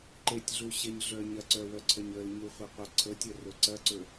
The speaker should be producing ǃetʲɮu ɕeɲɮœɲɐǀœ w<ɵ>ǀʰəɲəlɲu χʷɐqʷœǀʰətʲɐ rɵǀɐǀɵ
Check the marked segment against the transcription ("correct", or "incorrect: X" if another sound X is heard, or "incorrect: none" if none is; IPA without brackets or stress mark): incorrect: œ